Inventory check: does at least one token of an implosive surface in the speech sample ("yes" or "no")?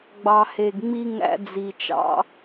no